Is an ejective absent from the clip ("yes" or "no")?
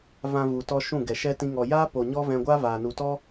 yes